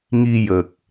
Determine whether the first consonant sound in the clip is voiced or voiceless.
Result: voiced